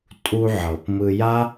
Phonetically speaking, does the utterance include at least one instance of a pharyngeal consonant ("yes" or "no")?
yes